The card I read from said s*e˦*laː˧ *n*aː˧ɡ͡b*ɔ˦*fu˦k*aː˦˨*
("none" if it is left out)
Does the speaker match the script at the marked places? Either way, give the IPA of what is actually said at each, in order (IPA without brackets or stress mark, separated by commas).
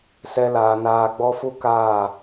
ɛ˦, n, ɔ˦, aː˦˨